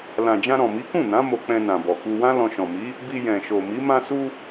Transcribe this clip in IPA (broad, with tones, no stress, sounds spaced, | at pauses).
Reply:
l ã˨ d͡ʒ ã˧ ɾ ɔ̃˨ m i˨˦ k ũ˦˨ n ã˨˦ m o˧ k͡p ɛ̃˧ n ã˨ b ɔ˨ k u˧ w ã˦ l ɔ̃˧ ʃ ɔ̃˨ m i˨˦ | b i˧ j ɛ̃˨ ʃ o˨ m i˨˦ m ã˧ s u˧